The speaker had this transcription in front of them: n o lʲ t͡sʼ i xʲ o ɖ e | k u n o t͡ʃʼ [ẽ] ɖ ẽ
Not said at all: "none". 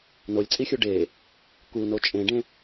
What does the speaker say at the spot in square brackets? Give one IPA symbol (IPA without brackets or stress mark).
ẽ